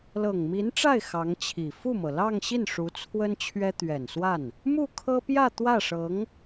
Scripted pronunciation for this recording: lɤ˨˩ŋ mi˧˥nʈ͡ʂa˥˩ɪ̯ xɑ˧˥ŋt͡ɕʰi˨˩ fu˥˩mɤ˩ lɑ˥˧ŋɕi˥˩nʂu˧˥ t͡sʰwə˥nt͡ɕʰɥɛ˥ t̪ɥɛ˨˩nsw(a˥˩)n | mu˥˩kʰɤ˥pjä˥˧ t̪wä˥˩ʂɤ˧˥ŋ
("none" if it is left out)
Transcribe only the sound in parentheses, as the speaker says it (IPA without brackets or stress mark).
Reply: a˥˩